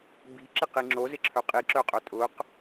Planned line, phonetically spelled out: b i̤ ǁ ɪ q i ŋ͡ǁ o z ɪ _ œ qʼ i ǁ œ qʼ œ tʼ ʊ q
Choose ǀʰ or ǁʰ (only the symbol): ǁʰ